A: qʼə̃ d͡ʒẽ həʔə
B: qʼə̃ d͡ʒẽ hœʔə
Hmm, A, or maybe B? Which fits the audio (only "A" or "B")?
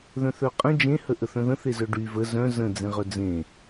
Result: A